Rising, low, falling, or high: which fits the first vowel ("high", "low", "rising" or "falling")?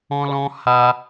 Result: high